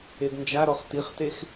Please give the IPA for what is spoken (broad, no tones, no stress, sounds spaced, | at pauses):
e d n d͡ʒ a ɾ ɔ χ t i χ t e x